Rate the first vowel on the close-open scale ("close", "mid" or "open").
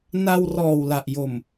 open